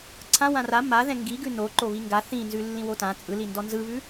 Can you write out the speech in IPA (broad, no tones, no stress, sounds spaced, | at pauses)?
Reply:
ǀʰ ã w ã r a m a ð ɛ̃ ŋ ɡ i ɡ ʉ n o ǃ o β i ŋ ɡ a θ ĩ n z ʉ lː ĩ w o t ã t͡sʼ ɯ l i n d ɔ n z ɯ β ʉ